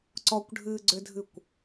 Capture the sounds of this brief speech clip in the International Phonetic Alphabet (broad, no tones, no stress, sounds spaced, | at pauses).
ǀ ɔ kʷ ɖʱ ɨː ɡ͡ǀ ʏ dʱ ɨ kʷ